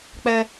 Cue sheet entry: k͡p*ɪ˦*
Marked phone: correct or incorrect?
incorrect